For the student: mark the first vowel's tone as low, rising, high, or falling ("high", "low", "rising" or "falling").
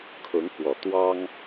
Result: rising